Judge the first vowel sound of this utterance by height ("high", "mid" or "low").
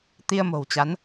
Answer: high